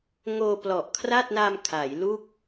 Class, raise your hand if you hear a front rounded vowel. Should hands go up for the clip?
no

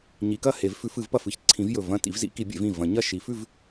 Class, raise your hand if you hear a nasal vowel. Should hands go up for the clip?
yes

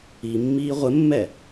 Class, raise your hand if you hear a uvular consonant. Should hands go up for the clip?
yes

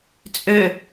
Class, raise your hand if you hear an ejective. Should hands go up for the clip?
yes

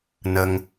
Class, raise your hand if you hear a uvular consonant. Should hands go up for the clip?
no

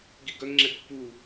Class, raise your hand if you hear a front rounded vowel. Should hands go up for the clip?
yes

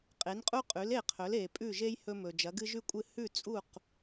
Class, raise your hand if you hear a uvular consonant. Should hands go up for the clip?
yes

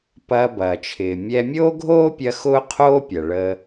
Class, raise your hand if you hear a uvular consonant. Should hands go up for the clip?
yes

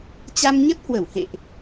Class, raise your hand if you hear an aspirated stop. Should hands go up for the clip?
no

